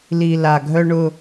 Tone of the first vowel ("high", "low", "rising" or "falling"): low